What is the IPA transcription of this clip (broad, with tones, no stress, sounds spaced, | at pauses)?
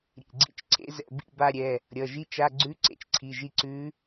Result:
ɾʲ ḛ˩˧˩ ɡ͡ǀ ḭ˦˨ t͡ʃ ǀʰ ḛ˧˥ z ɛ̰˦˨ b ḭ˦˨ b a˦˨ ɾʲ ɛ˩˧˩ | ɾʲ ʌ˩˧˩ ʒ i˧˥˧ t͡ʃ a˧˥˧ ɡ͡ǀ ʉ˧˥˧ ǀ ḛ˧˥ t͡ʃ ǀʰ i˩˧˩ ʒ i˦˨ ǀ ʉ˧˥